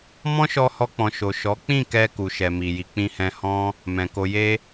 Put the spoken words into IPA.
mɔ̃˦ʃɔ˧hɔ˧k͡pɔ̃˨ ʃo˨ʃɔ˨˦k͡pĩ˦˨kɛ˧ ku˨ʃɛ˨mi˨ji˨˦ k͡pĩ˧hɛ̃˧hɔ̃˦ | mɛ̃˨ ko˧ je˦

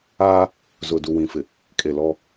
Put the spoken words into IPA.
aː˦ | zʊ˨du˨wĩ˨fɪ˨ | kʼe˨lɔ˦

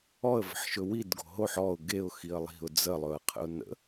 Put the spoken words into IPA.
ɔə̯və̤ħʃɵ widɡo̤ ɦoħ ɔʊ̯ ɡeʊ̯xiə̯ lˠi̤ʊ̯ d͡zəlˠɵə̯qʰə̰ʊ̯ nə̰

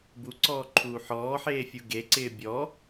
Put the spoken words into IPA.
buǀɔːǃʰuː ħɔːħeːfʲu ɡeǀɪː bʲɔ

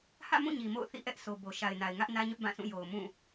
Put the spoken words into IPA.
hä̰˦˨mũ˦˨ ɲi˨mo̰˦˨ʊ̯ θḭ˦˨ʔɛ˦ʔsʰo˨ bo˨ ʃa˨ɪ̯na˨ɪ̯ŋä˦ʔ nä˦ɲʊ˦ʔbã˦˨sʰũ˦˨ jo˨ʊ̯mũ˦˨

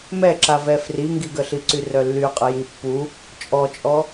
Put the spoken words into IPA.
mɛǁavɛ friŋɡiɡəɬi ǀyrœlːy qʼəjipːu | t͡ʃʼɔt͡ʃʼɔ

